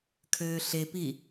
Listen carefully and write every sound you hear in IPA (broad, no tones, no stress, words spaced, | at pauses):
kʰøːɬepi